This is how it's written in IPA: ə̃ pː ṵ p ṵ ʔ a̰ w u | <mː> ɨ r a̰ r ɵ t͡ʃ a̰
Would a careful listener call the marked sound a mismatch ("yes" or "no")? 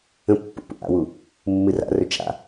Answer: no